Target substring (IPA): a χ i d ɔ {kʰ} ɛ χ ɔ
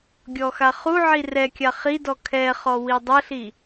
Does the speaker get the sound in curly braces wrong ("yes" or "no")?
no